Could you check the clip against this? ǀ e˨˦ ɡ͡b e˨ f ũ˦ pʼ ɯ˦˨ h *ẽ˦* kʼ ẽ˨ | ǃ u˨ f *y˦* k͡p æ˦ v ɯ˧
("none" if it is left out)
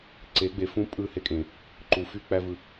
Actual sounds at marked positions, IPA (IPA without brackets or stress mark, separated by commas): e˦, y˦